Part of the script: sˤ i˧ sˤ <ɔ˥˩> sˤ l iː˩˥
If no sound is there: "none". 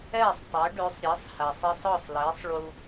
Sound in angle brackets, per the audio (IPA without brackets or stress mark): ɔ˥˩